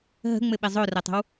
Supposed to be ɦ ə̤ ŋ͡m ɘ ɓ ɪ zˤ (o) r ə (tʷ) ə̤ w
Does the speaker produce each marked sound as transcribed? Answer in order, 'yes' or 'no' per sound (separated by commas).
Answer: yes, no